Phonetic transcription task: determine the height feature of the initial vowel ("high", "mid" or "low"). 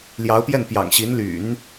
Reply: low